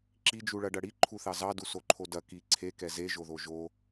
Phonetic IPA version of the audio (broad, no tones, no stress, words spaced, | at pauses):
ǁid͡ʒuɭɐɖɐ ɽiǃʰuθɑ zɑdusoǃʰo dɐ ki ǀʰekɛ zeʒoðo ʒo